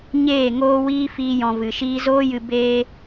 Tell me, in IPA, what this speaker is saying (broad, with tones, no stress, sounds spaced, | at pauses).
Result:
ɲ eː˦˨ ŋ oː˦ w iː˦ f iː˦ j ɔ̃˧ v ɨ˨ ʃ iː˧ z oː˦ j ɨ˧ b eː˦